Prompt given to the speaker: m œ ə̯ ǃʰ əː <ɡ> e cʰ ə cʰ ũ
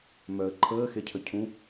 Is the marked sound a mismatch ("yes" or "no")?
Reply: yes